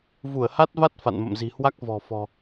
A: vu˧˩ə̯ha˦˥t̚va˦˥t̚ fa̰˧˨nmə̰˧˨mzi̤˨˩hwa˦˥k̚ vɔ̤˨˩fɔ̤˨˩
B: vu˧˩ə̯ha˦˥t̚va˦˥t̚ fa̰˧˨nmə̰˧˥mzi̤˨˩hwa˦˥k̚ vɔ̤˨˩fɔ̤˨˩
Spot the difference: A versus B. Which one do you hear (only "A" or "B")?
A